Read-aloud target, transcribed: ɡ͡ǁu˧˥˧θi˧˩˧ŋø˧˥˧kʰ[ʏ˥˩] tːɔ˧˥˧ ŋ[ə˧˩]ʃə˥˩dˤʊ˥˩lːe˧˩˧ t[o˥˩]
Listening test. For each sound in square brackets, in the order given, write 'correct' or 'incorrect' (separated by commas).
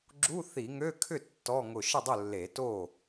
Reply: correct, incorrect, correct